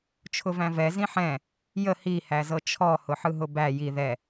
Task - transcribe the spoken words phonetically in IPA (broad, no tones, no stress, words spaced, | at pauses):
t͡ʃʰʊvæ̃vɛ zĩħɛ̃ | jə hi hæzɤt͡ʃʰɔ hʊħɯɦʊbæ ji ðɛ